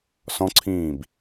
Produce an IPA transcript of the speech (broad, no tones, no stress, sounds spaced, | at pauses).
s ɔ̃ ǀʰ ĩː b